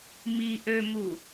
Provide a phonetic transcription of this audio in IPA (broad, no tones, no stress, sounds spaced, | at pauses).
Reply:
m i ʔ ø m u